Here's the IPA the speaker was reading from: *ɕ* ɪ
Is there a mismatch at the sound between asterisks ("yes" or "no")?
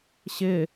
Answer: no